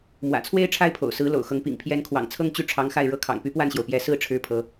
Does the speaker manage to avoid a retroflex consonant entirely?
no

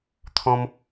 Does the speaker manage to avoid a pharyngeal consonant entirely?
yes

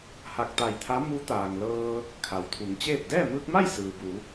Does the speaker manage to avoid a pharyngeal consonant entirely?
yes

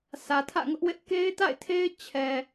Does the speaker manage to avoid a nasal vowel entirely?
yes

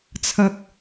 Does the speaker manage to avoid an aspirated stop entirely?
no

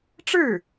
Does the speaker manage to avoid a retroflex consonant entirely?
no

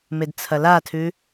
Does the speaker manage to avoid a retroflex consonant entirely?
yes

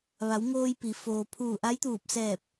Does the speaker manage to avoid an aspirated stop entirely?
no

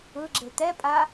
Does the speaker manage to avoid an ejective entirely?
no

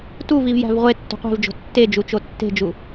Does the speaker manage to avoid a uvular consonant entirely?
no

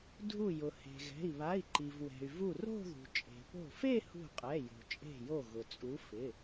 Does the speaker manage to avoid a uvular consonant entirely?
no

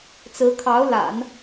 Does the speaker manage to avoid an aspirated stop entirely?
no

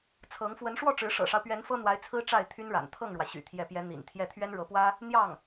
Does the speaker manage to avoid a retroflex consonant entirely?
no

